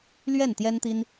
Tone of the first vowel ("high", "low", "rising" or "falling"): falling